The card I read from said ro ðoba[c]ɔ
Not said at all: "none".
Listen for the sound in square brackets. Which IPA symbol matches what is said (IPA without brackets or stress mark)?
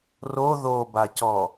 c